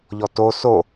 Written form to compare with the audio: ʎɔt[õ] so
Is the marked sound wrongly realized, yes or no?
yes